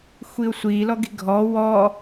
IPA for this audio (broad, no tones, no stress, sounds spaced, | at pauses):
xʷ i ʊ̯ sʷ i l ɔ ɡ i̤ ɡʱ ɔ w ɔ